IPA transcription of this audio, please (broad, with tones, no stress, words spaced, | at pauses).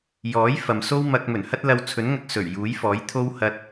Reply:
jɔː˨˥j fɐ˨m so˥wmɐ˧k̚ mɵ˨˩nhɐ˥t̚lɐ˧w t͡sʰɵ˨˥nŋɐ˧k̚ sɵ˨˩ɥ juː˨˥jfɔː˨˥j t̪ʰo˥w hɐ˧t̚